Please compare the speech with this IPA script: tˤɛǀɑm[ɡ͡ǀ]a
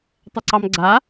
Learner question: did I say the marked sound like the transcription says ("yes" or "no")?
yes